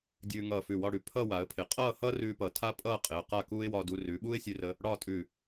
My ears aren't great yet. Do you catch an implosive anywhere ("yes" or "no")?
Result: yes